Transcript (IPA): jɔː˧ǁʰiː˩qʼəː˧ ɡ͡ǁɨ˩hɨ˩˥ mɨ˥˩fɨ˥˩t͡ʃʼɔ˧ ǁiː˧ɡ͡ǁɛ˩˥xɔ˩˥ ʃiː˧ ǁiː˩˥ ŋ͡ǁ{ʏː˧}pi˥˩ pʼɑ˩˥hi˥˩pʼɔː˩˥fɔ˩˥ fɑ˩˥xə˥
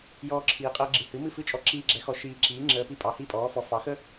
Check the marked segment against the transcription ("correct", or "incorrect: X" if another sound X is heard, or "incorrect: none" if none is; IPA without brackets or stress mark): incorrect: əː˧